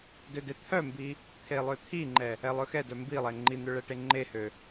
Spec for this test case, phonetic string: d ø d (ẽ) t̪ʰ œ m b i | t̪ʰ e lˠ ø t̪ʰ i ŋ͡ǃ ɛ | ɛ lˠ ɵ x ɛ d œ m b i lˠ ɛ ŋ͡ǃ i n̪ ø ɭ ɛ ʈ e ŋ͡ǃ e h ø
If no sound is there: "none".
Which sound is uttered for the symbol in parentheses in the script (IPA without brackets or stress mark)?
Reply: e